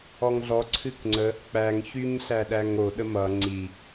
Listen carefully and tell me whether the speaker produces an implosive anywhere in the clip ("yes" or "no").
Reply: yes